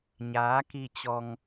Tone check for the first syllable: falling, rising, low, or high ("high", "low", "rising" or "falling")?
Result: rising